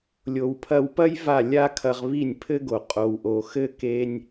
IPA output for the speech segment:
lʲ o˩ w pʰ ɐ˧ w p ɐ˥ j v a˥˩ lʲ a˥ kʰ ɐ˧ ʁ β i˥˩ nʲ pʰ ɘ˥ ɡ o˩ qʼ o˩ w ʔ o˩ x ɘ˥ k e˥ nʲ

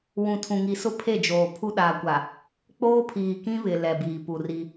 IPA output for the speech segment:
w ũ˨ tʰ ũ˨ ŋ i˨ s ʊ˦ pʰ e˦˨ d͡ʒ oː˨ pʰ u˦ ɗ a˨ kʷ a˨ | k͡p oː˦ pʰ iː˨ k ĩ˦ β ɪ˨ l ɛ˨ b iː˨ p u˨ r i˦

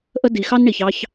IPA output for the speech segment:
ʔ ə˧ d i˨ x ɑ˦ n ɳ i˨ ç ɑ˧ ç

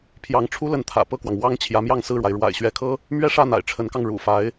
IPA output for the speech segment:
pʰ j ɑ˧˥ ŋ ʈ͡ʂʰ u˥ l ə˧˥ n t̪ʰ ä̰˨˩ p ɤ˥˩ k w ɑ˩ ŋ w ɑ˥ ŋ t͡ɕʰ j ä˧˥ m j ɑ˥˧ ŋ s ɹ̩˥˩ ɻ w a˩ ɪ̯ ɻ w a̰˨˩ ɪ̯ ɕ ɥ ɛ˧˥ kʰ ɤ˥ | m ɥ ɛ˥˧ ʂ ä˥˩ n̪ a̰˨˩ ɪ̯ ʈ͡ʂʰ ə˧˥ n k ɑ˧ ŋ ɻ ṵ˨˩ f a˧˥ ɪ̯

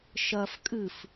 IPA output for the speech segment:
ʃ ɐ f kʼ ɨ f

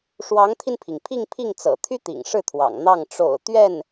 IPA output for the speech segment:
ʂ w ɑ˧˥ ŋ t̪ʰ i˧ n pʰ i˩ ŋ pʰ i˥˧ ŋ pʰ i˥˩ ŋ t͡s ɤ̰˨˩ t̪ʰ y˥ t̪ ḭ˨˩ ŋ ʂ ɻ̩˥˩ t̪ʰ w ɑ̰˨˩ ŋ n̪ ɑ˥˩ ŋ ʈ͡ʂ o̰˨˩ ʊ̯ t̪ ɥ ɛ˥˩ n

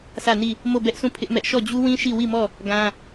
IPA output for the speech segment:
s ä˦˨ n i˦˨ | m o˦˨ b ɛ˦ ʔ sʰ ũ˦˨ pʰ ɪ˦ ʔ m ɛ˦ ʔ ʃ ɔ˦˨ d͡ʑ u˦ w ĩ˦ ʃ i˦˨ w i˦˨ m ɔ˦˨ | ɡ ã˦

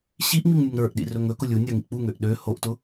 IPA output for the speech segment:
ɕ i ʔ ŋ͡m i ŋ nʲ ɵ ŋ ɾ ə˞ ʔ ɗ ḭ r ɵ ŋ ɵ k ʊ lʲ u nʲ a ŋ ḭ k͡p u ŋ ø ʔ ɗ ø h o ʔ t ʊ

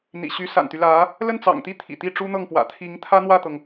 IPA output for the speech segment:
n̪ ḭ˨˩ ɕ y˧˥ s a̰˨˩ n t̪ y˦ l ä˧˥ | l ə˥˩ n t͡s ɑ̰˨˩ ŋ t̪ i˥˩ t̪ʰ ḭ˨˩ t̪ i˥˩ ʈ͡ʂ u˥ n̪ ɤ˥˩ ŋ p w ä̰˨˩ t̪ʰ i˧˥ ŋ t̪ʰ ä˥ n̪ w ä˥˩ t̪ ɤ˩ ŋ

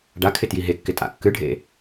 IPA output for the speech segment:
ɖ a kʰ ɪ t j i ɦ e kː ɪ tʼ a̰ kː ɨ ɖʱ ḛ

